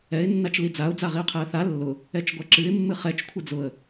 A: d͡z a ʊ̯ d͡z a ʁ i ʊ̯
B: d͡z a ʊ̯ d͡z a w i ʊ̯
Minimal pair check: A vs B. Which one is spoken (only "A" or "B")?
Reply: A